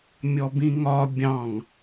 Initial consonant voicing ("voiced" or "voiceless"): voiced